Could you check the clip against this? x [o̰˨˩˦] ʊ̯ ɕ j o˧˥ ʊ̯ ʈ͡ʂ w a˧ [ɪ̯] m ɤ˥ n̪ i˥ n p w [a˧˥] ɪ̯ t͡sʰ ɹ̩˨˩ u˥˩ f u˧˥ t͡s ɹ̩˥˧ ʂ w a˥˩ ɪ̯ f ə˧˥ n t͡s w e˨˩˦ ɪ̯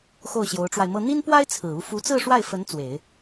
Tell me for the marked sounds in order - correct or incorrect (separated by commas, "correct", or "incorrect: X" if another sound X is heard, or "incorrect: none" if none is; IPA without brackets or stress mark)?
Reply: incorrect: o˥˩, correct, incorrect: a˥